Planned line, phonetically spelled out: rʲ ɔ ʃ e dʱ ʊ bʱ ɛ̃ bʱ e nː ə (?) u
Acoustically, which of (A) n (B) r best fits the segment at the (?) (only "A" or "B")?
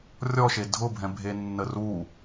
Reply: B